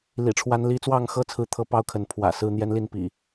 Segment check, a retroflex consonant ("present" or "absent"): present